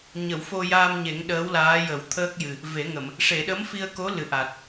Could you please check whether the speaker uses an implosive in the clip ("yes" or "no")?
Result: yes